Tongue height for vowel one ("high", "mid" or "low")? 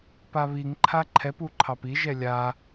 low